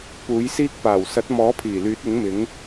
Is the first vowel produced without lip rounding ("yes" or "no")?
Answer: no